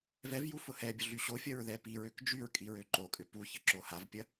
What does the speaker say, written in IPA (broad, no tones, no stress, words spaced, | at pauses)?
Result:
vɛvju fʊhɛbʲʊ ɮyɕofʲɐɹ ðɛpiɹøk d͡ʒyɹkʼiɹ øǃokʼʏ puçə ǁohavpʲɐ